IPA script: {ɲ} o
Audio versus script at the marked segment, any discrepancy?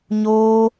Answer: no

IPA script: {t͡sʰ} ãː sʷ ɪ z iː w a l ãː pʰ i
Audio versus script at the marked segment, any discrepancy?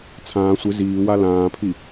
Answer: no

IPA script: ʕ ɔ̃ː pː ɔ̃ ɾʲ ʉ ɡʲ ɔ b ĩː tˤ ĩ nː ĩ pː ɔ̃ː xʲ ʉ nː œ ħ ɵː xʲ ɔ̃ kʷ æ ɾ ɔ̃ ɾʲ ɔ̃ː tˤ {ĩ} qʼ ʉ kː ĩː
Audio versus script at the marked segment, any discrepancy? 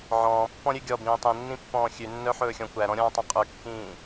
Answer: no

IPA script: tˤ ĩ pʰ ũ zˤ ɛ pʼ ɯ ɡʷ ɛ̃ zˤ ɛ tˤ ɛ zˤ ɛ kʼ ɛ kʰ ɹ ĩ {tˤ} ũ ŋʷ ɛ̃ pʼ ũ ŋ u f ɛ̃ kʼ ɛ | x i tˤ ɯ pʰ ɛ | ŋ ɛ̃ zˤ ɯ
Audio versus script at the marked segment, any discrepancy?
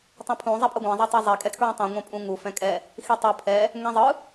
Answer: no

